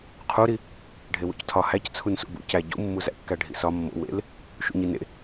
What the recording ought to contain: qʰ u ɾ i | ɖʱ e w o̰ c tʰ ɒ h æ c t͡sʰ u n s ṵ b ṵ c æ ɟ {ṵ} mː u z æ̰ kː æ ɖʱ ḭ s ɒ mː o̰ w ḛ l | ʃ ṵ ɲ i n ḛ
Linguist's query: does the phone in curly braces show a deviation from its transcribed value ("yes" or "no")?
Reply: no